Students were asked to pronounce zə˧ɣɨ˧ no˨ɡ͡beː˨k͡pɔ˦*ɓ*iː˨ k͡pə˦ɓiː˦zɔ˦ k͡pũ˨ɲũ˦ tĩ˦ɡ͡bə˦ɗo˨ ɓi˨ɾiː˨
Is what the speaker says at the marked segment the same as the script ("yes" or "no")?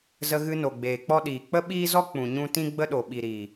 no